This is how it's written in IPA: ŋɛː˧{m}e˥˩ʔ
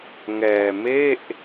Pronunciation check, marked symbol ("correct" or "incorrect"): correct